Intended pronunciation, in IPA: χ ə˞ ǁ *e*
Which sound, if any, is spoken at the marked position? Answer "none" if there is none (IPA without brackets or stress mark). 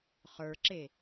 e